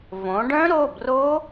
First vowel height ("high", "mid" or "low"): mid